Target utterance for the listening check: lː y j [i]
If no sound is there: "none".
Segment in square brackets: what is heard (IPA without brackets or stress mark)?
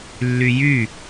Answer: y